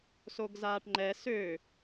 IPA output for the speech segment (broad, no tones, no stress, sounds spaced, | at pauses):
s o ɡ z aː ʈ ŋ͡ǃ ɛ s ø